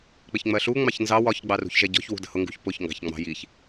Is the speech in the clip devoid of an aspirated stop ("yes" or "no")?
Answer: yes